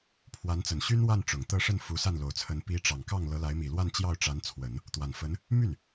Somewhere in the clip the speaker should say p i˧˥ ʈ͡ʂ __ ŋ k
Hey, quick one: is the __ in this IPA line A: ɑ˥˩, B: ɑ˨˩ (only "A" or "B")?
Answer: B